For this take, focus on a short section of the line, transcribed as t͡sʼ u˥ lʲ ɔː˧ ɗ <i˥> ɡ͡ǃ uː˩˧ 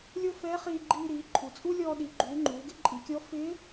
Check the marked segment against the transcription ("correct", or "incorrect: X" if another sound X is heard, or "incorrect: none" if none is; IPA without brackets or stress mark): incorrect: i˩˧